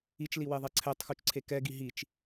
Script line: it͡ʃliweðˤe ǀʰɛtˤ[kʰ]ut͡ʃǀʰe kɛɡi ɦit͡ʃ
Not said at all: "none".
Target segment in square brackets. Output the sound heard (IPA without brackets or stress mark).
x